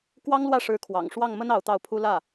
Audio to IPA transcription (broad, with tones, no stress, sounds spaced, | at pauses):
k w ɑ˥ ŋ l w ä˥˩ ʂ ɻ̩˧˥ kʰ w ɑ̰˨˩ ŋ ʂ w ɑ˥˩ ŋ m ə˥ n ɑ˧˥ ʊ̯ t̪ ɑ˥˩ ʊ̯ pʰ u˥ l ä˥˩